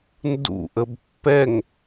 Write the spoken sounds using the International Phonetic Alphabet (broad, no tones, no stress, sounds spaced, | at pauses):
n d ṵ ʔ ə b pː ɛ ŋ